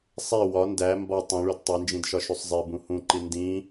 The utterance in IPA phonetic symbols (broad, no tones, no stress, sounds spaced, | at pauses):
sˤ e w ɒ n d æ m b ɒ tˤ õ ɭ u d tˤ e n d͡ʒ ĩ d ʃ ɒ ʃ u sˤ zˤ e b ũ h ũ ǃ i n d ĩ